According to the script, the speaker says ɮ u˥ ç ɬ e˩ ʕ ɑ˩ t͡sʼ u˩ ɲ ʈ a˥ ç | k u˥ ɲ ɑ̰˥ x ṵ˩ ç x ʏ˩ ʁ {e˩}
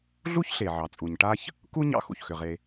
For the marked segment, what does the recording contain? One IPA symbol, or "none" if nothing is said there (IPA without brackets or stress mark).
e˩